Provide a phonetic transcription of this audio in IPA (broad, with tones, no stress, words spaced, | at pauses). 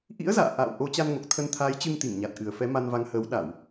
ʔḭ˧˥ə̯za̰ː˧˨ ʔa̰ː˧˨wʔo˨˦ t͡ɕa˧nŋo˨˩k̚t̪ʰə˧n t̪ʰaː˨˦jt͡ɕɨ˧ŋt̪i˧˩ŋɲa˨˩t̚ ʔɨ˨˩ə̯fɛ˨˦ ma˧nva˨˦ŋhəː˨˦w ɗa˧˩˨w